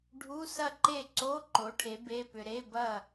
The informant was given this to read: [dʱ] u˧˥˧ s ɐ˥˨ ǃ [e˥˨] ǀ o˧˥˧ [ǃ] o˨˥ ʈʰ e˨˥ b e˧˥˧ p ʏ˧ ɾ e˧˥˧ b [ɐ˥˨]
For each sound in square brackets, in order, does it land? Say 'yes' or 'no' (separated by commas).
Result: no, yes, yes, yes